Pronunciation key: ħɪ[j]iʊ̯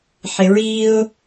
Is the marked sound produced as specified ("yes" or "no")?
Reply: no